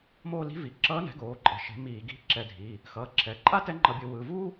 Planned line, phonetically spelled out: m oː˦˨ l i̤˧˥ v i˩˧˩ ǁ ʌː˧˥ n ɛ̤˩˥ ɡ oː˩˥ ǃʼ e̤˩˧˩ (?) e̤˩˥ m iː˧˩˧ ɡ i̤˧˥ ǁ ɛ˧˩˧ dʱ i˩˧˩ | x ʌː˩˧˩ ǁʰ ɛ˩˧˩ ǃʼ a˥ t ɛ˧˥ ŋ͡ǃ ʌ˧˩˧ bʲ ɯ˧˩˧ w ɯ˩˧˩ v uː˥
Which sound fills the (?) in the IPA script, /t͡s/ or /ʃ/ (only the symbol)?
ʃ